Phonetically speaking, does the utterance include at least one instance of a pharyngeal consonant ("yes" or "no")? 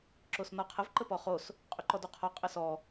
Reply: no